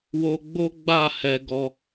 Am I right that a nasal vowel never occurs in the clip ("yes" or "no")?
yes